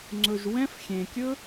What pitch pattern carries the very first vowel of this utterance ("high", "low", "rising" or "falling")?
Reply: low